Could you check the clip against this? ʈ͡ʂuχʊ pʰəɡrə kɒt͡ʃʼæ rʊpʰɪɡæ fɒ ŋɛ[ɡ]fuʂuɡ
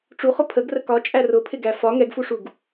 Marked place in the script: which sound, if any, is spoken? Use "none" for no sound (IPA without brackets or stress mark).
ɡ